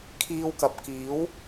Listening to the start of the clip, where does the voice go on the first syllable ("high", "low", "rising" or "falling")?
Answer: high